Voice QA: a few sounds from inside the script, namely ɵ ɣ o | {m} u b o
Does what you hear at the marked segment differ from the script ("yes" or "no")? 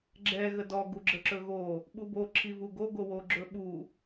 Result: yes